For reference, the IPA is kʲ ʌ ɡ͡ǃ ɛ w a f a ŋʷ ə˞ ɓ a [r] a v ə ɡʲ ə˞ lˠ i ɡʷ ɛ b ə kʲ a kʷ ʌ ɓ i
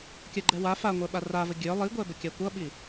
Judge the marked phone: correct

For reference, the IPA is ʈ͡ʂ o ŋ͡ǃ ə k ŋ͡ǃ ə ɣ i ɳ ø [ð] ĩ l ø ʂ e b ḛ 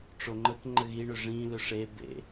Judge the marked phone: incorrect: ʐ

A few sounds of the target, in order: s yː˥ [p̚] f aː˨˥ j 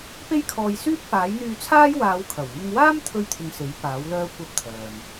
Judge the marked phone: correct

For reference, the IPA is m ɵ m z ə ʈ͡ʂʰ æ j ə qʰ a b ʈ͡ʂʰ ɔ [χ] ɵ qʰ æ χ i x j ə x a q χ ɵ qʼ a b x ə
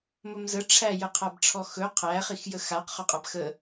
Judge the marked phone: incorrect: x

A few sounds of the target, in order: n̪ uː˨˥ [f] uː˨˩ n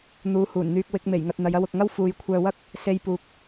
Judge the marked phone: incorrect: h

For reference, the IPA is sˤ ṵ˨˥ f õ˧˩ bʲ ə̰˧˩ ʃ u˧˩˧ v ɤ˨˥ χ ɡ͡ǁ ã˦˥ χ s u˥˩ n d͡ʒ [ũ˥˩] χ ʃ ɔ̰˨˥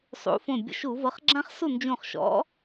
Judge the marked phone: incorrect: ũ˧˩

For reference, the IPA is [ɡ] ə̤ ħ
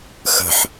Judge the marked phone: incorrect: x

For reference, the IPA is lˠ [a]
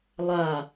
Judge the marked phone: correct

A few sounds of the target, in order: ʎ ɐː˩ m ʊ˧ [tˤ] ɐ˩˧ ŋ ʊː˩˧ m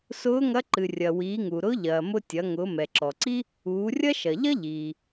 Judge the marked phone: incorrect: tʲ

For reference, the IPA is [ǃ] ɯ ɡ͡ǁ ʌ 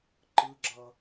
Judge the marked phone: correct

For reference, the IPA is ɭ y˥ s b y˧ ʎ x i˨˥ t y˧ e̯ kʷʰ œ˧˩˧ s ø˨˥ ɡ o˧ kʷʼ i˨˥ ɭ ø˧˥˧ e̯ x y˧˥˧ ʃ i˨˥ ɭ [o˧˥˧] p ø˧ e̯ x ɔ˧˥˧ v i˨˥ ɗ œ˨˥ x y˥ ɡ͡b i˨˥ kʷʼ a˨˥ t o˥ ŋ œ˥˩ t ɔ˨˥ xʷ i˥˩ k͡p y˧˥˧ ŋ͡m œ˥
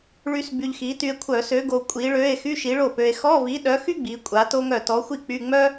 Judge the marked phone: incorrect: o˥˩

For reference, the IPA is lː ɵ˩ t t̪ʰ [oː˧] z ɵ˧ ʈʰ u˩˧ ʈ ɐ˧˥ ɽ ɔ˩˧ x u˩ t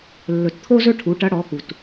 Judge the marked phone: incorrect: o˧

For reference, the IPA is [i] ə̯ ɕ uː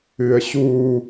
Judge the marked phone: incorrect: ɨ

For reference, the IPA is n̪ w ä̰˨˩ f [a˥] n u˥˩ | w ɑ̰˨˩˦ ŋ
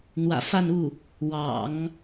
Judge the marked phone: incorrect: a˥˧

